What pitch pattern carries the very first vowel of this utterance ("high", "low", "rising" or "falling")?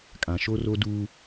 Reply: low